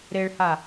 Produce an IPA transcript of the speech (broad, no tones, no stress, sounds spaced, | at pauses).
ɾ e ɭ h a